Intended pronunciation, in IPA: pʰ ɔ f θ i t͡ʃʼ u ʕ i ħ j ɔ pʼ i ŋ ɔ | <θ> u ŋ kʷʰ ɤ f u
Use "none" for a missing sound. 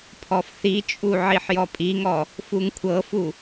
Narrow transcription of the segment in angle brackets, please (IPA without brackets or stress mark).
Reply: f